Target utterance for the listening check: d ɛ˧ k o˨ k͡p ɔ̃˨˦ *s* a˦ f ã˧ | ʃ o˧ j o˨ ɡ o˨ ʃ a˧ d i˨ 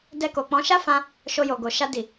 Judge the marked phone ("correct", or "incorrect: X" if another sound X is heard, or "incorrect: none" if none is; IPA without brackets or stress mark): incorrect: ʃ